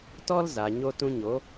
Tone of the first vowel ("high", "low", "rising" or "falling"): high